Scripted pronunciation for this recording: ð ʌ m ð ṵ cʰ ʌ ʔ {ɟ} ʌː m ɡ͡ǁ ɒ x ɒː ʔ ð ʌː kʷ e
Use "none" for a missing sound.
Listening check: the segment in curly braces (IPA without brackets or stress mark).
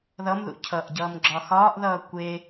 ɟ